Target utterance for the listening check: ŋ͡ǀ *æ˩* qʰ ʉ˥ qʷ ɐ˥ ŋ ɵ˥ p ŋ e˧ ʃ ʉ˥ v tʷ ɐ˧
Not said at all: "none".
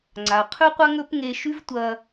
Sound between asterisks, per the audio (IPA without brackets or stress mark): a˩